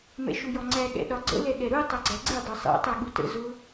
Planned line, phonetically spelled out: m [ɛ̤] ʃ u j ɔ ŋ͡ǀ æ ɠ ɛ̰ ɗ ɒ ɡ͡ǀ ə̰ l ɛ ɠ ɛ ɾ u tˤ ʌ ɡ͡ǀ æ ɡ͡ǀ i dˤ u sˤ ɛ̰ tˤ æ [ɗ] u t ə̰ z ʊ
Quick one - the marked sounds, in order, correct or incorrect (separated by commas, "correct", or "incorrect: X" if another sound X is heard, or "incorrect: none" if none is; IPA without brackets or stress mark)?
incorrect: ɛ̰, incorrect: ɠ